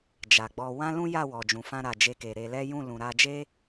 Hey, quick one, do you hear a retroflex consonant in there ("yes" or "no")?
no